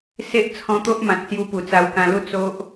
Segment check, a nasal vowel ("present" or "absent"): present